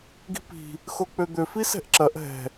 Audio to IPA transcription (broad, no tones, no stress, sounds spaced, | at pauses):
ɡ i̤ p i̤ | x o k͡p ø d̪ ø f i s ɛ̤ ʔ ǁ ɐ ʔ ɦ ɛ̤